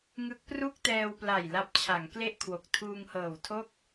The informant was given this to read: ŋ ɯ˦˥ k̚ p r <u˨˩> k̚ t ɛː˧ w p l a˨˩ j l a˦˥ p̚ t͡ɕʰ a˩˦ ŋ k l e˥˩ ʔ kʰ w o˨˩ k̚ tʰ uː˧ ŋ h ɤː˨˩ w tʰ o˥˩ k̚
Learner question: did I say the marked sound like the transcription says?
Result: no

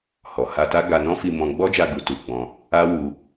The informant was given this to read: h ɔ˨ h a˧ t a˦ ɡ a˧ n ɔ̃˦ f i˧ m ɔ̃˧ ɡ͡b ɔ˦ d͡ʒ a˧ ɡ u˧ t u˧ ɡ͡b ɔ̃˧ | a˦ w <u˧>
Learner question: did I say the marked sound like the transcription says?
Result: yes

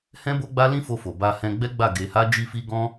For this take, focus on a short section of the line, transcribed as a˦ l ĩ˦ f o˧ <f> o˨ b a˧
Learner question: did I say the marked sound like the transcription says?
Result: yes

